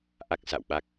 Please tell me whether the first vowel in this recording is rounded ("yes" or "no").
no